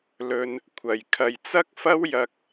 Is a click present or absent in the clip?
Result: absent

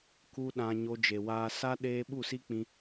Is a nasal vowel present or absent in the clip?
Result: present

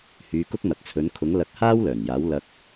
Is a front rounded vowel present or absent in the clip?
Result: present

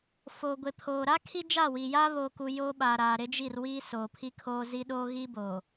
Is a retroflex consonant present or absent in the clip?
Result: absent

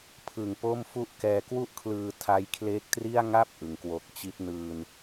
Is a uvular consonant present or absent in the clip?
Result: absent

